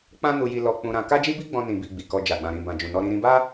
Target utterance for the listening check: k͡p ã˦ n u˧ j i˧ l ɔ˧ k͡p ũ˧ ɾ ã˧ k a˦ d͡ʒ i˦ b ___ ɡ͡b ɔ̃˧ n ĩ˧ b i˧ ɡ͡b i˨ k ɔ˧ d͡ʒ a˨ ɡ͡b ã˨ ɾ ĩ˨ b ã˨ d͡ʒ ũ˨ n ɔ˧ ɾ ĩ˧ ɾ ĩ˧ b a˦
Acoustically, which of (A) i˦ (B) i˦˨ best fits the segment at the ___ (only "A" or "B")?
A